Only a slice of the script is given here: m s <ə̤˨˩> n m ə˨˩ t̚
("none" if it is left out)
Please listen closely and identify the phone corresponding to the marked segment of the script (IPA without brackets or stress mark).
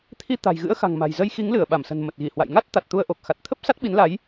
ə̤˨˩